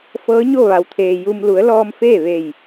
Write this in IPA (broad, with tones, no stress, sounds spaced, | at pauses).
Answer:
f ɤː˧˥ ɲ o˥˨ ʋ a˩ w t̪ʰ eː˩ j u˧ m l u˩˧ ə̯ l ɔː˧ m f eː˥˨ ʋ e˧˩ j